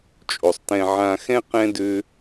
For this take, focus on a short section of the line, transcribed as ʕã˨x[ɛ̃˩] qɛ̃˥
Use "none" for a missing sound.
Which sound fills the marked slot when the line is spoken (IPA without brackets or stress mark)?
ɛ̃˦